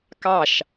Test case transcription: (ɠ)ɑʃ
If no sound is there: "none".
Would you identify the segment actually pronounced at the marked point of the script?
k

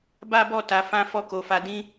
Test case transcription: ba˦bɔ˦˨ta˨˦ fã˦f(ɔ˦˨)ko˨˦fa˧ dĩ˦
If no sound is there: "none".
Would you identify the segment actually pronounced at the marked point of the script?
ɔ˦˨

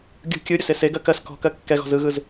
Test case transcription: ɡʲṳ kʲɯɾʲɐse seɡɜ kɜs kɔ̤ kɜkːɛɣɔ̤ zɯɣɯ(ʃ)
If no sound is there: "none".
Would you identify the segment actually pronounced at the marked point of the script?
z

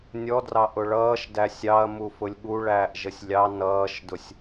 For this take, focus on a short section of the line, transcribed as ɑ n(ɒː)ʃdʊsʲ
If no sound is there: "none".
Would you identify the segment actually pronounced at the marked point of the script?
ʌː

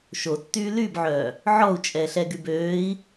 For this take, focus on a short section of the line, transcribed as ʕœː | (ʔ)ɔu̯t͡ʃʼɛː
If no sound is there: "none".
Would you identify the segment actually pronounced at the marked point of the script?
ʕ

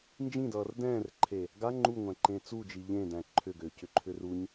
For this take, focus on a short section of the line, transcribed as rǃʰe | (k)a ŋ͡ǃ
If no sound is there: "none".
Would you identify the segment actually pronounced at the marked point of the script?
ɡ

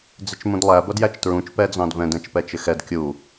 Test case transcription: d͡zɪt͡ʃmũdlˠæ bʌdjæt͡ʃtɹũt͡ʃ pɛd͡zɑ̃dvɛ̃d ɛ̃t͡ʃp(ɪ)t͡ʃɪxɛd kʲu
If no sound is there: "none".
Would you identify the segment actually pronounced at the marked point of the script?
ɛ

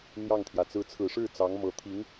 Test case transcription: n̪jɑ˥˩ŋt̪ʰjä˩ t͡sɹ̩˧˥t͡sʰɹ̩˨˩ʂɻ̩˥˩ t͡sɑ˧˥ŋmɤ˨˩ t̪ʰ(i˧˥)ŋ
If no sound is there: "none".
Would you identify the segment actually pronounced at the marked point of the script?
i˧˥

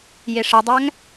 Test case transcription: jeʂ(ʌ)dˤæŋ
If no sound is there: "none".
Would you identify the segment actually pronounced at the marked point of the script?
ʌ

